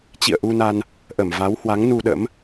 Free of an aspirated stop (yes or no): yes